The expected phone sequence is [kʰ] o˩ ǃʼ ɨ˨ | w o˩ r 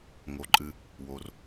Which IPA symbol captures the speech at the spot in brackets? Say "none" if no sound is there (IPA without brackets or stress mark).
ŋ